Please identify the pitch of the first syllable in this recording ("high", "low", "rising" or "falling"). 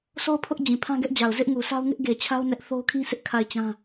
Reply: falling